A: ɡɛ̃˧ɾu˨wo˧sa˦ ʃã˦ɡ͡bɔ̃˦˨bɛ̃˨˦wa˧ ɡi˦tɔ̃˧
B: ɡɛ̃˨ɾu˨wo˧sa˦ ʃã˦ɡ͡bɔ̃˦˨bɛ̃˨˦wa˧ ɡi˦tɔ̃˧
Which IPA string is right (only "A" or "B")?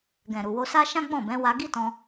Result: B